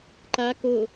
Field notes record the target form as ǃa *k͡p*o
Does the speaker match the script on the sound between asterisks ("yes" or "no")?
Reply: no